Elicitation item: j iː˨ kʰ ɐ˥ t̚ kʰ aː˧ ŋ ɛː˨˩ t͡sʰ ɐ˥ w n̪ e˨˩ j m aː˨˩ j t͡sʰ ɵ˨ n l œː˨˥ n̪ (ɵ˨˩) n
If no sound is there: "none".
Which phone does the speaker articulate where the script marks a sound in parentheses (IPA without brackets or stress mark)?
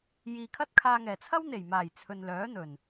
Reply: ɵ˨˩